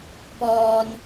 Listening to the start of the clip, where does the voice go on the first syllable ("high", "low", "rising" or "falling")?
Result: low